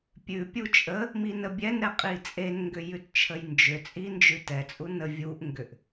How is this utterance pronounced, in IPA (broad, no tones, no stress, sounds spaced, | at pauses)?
pʲ ʉ pʲ u t͡ʃʼ ə | m i n ə bʲ ɛ n ɾ ɛ qʼ i t͡sʼ e n ŋ ɡ ʏ j ʉ t t͡ʃʰ ə j n d͡ʒ ʏ t͡sʼ i n d͡ʒ ʉ t ɛ t͡sʼ u n ə vʲ u ʔ ŋ ɡ ʏ ʔ